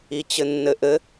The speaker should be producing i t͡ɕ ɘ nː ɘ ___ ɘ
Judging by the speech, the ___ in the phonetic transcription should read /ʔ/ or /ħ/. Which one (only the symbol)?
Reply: ʔ